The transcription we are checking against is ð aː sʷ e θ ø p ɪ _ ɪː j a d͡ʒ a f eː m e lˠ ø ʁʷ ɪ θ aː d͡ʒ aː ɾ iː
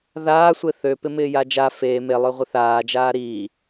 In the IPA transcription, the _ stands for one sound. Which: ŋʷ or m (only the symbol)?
m